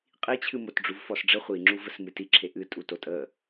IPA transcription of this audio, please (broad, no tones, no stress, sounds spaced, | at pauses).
qʼ i t͡ɕʰ ɨ m o t ɖ͡ʐ u v f ɔ s ɖ͡ʐ ə χʷ i ŋ͡ǁ u v ə s m ɨ t i ǁʰ e ʔ ɨ tʼ u t o tʼ ə